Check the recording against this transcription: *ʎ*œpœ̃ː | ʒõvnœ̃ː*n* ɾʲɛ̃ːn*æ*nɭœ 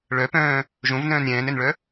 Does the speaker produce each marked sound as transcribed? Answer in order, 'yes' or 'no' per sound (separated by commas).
no, yes, no